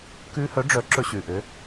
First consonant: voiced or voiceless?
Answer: voiceless